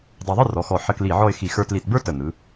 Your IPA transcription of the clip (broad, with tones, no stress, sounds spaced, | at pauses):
dˤ æ˧ ðˤ ɯ˥ r ɔ˩˧ x ɔ˧˩ ħ ə˧ k l i˧˩ ʕ ɔ˥˧ ɪ̯ x i˧ x ə˞˧ t l i˧˩ t b ə˞˥ t ə˧˩ n̪ ɯ˩˧